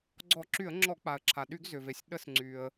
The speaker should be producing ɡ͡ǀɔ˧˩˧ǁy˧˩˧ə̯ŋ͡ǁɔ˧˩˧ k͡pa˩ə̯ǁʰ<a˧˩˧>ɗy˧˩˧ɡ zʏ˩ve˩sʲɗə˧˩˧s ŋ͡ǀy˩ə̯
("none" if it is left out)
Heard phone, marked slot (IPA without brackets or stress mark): a˩